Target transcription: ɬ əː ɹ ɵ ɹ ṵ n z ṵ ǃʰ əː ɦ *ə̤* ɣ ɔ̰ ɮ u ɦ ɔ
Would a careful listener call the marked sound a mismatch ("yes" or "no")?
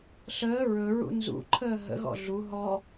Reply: yes